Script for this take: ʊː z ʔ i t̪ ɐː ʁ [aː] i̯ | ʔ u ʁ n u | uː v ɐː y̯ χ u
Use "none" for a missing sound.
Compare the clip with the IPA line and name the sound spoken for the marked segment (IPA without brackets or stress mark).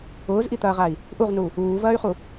a